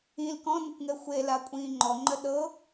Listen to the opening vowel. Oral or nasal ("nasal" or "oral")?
nasal